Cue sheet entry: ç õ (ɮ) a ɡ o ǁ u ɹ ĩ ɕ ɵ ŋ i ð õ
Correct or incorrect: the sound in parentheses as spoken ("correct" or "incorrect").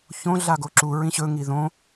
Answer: correct